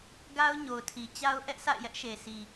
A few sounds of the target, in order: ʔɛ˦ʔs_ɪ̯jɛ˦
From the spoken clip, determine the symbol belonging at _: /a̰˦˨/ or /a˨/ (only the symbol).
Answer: a̰˦˨